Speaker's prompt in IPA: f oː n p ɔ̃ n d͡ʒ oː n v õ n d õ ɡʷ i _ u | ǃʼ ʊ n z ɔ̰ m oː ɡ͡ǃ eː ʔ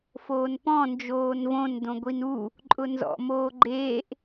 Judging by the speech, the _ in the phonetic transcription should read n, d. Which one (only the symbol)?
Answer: n